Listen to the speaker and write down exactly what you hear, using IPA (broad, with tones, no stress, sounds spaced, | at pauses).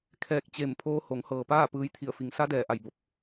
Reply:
kʰ ɛː˧˩ k̚ t͡ɕ e˧˩ m pʰ oː˧ h o˩˧ ŋ h ɤː˩ p aː˥˨ p ɯː˧˥ j t̪ʰ i˧˩ ə̯ f i˩˧ ŋ s a˧˥ d ɛː˩ ʔ a˧˩ j b o˧ p̚